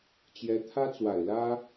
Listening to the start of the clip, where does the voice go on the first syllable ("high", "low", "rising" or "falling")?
rising